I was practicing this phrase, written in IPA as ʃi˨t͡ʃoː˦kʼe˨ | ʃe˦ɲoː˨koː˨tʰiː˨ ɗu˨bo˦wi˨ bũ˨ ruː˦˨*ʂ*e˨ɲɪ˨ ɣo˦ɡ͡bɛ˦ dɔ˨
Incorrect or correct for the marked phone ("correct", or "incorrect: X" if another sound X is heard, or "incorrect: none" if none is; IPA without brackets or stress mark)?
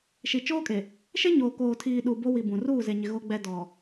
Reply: incorrect: z